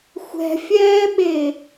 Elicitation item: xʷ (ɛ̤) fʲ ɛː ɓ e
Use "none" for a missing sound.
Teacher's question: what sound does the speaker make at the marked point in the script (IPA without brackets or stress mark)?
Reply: ɛ̤